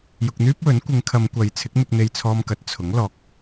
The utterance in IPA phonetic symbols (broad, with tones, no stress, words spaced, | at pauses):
jʊ˧k̚n̪yː˥p̚wɵ˨˥n kʷɪ˨˧ŋkʰɐ˨˧m kʷɐ˨˧j t͡sʰɪ˨˥k̚mɪ˧k̚n̪e˧j t͡sʰɔː˧mkɐ˨˥t̚ t͡sʰʊ˨˥ŋ lɔː˨k̚